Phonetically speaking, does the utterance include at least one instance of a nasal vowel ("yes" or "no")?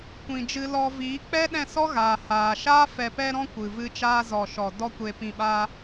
yes